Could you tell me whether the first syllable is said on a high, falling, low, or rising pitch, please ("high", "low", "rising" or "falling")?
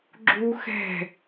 high